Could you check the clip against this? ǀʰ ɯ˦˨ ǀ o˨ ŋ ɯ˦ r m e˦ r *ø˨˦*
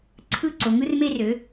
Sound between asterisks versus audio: correct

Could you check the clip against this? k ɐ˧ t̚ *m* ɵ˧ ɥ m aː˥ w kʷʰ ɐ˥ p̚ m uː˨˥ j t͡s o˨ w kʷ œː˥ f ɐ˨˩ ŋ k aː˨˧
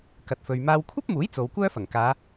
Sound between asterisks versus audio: incorrect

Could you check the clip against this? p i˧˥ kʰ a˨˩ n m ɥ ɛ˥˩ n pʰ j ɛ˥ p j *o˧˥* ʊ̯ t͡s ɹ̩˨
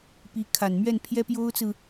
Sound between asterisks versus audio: incorrect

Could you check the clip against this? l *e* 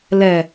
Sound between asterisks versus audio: incorrect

